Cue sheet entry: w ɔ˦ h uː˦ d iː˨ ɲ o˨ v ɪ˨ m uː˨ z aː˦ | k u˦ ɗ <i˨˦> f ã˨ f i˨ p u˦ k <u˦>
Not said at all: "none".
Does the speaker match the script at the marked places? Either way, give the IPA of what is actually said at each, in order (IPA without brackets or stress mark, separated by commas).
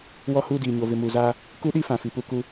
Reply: i˦, u˦